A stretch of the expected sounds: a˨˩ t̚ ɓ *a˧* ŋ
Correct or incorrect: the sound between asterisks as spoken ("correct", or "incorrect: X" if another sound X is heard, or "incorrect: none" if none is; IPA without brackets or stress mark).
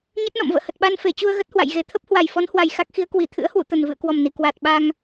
correct